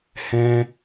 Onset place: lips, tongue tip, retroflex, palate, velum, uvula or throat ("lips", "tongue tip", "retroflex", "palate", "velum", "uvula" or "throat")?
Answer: throat